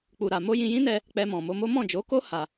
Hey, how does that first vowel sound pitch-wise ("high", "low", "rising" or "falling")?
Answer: low